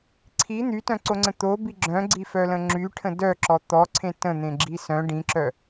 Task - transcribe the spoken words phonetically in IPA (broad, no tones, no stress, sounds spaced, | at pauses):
ǀʰ i n̪ y t œ̃ ǀ o ŋ͡ǀ ə̃ t̪ o b i ɡ͡ǁ œ̃ ɡ͡ǀ i f œ l ə̃ ŋ͡ǁ y ʈʰ ə̃ d œ ǁ ɔ t̪ ɔ ǀʰ ẽ t ə̃ n̪ ẽ ɡ͡ǁ i s œ̃ ɖ ĩ ǁ œ